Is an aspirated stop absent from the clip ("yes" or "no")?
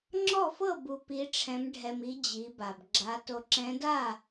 no